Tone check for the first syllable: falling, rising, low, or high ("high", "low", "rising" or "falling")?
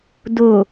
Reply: low